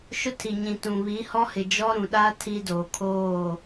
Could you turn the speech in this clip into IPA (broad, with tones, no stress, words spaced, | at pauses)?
ʃʊ˦tʰi˨ ɲĩ˨tũ˨βi˨˦hɔ˦ hɪ˨d͡ʒɔ˦ ɾũ˨ɗa˦ tʰi˦doː˨kʰoː˦˨